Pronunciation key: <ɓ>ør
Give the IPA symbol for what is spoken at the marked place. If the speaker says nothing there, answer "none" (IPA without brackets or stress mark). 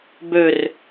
b